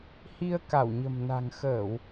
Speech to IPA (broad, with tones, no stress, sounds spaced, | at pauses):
h i˧ ə̯ k a˧˩ w ɲ ə̤˨˩ m n a̤˨˩ ŋ x əː˧˩˨ w